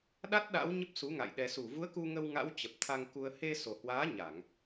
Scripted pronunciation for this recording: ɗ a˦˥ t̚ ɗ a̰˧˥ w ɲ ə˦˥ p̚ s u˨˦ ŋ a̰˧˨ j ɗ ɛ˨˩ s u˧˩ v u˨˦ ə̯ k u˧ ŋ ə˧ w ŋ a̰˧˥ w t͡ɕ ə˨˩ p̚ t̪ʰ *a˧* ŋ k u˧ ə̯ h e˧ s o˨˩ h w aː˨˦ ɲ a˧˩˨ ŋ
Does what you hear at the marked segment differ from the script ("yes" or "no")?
no